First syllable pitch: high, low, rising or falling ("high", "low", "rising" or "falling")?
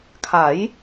rising